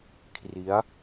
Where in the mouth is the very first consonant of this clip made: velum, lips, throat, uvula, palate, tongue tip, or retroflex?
velum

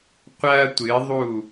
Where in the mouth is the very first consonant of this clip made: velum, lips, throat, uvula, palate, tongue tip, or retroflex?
uvula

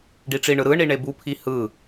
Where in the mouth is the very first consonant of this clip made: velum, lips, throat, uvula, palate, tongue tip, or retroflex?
retroflex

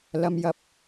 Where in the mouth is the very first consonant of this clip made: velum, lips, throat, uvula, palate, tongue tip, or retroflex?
tongue tip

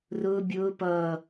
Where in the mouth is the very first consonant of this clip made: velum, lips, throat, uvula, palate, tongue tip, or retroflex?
tongue tip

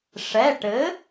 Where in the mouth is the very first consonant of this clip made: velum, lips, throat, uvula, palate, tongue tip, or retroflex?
retroflex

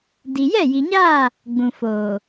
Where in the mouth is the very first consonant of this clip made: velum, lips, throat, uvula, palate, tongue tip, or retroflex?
tongue tip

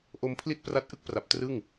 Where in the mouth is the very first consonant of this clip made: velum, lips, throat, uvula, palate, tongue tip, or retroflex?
throat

